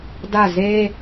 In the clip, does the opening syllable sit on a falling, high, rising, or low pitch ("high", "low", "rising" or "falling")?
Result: falling